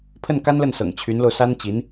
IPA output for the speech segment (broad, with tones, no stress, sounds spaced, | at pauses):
pʰ ə˥˩ n k a˥ n l ə˥˩ n s ɤ̰˨˩ ŋ t͡ɕʰ y˧˥ n l o˧ ʊ̯ s a˥ n t͡ɕ i˧˥ n